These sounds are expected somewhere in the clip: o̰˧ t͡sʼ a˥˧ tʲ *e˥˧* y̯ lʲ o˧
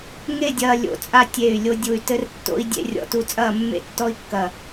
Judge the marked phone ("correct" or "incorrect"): incorrect